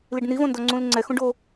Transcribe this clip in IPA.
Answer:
l i ɖ n i v õ n d ɔ ŋ͡ǀ ũ l ŋ͡ǀ ɛ x ũ ɖ o

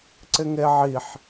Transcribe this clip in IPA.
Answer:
ǀ ɪ ŋ e ʕ i ħ

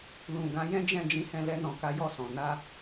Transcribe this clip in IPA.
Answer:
l ũ˨ ɡ ã˨˦ j ɛ̃˦ d͡ʒ ɛ̃˦˨ d͡ʒ ĩ˨˦ h ɛ̃˧ l ɛ˧ n ɔ̃˨ k a˨˦ j ɔ˦˨ s ɔ̃˨ n a˧

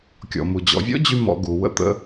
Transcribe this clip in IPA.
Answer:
kʲ ɔ̰˨ m u˨ d͡ʑ ɔ̰˨ vʲ ɔ̰˦ d͡ʑ y˦ m ɔ̰˧ ɡ u˨ w ə̰˦ t̪ ə̰˦

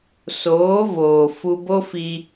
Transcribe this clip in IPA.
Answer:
s oː˨˦ v oː˨ f u˧ b o˦ f i˧

